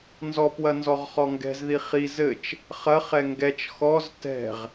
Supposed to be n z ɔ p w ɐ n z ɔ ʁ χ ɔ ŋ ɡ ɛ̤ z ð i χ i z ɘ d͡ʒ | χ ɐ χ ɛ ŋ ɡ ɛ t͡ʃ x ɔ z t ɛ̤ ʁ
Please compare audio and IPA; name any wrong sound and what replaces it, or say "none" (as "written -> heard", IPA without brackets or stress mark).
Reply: d͡ʒ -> t͡ʃ